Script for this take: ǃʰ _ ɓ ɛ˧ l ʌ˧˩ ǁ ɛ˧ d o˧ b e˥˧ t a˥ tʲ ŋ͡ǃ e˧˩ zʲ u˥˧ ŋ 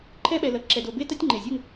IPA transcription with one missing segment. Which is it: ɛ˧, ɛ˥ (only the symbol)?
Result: ɛ˥